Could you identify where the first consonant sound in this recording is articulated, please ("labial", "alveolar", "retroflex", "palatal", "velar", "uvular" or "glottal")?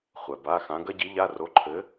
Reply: uvular